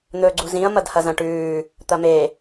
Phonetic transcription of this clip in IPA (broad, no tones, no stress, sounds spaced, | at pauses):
n̪ ɵː ɡ͡ǀ u z ĩ ɐ̯ m ɐ d h ɐ z ɐ̃ ʈ ʉː | t̪ ɐ m e